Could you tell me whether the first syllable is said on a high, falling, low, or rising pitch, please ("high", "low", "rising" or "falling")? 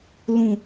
low